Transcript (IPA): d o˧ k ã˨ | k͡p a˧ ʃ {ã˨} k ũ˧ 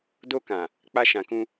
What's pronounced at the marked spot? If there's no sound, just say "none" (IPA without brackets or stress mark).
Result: ã˨